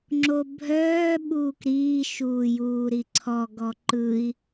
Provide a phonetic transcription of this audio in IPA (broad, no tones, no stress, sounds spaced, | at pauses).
ŋ͡ǁ o bʱ œː ɓ uː k ɾ iː ʃ uː j uː ɾ i ǀʰ ɔ ɡ ɔ ǃ ɯ i̯